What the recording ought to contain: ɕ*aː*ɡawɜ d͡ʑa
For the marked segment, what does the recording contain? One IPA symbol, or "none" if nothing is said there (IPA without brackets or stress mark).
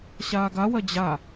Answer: aː